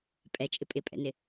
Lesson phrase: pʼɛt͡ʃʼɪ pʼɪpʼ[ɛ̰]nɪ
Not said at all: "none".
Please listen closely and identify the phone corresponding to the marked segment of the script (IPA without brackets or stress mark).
ɛ̰